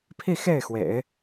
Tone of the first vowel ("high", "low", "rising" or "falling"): falling